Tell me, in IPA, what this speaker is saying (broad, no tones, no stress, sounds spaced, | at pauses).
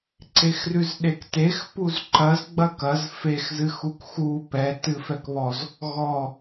ǀ e x r ʉ z ɗ e k t e x p u z ǃ ɐ z ɡ͡b ɐ k ɐ z f e x z ɨ x u k x u p ɛ t ɨ f ɛ k β ɔ z | ɣ ɔ